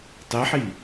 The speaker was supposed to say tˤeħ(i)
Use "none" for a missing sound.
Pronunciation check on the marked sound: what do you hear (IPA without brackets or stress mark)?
i